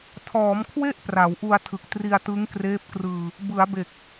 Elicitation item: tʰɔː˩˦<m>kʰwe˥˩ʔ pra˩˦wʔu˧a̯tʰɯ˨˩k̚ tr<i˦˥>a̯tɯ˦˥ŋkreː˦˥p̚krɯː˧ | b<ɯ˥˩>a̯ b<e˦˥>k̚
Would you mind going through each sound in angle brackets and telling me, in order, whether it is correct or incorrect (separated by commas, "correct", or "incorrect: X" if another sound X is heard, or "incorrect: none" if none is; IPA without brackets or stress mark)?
correct, incorrect: i˧, incorrect: ɯ˩˦, incorrect: e˨˩